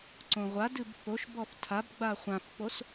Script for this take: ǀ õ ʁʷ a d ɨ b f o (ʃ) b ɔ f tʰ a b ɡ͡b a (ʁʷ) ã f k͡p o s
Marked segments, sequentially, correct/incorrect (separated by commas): correct, incorrect